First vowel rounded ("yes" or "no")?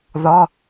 yes